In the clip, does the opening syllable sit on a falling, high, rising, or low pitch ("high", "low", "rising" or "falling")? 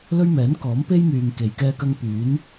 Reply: high